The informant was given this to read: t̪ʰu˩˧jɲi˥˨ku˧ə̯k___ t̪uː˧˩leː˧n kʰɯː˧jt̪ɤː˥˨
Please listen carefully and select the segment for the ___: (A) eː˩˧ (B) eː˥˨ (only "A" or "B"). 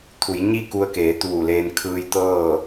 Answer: A